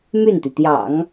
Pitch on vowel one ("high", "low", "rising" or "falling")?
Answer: falling